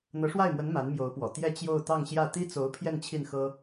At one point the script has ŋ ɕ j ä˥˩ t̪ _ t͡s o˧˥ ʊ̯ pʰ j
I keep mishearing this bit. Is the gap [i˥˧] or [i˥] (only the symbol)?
i˥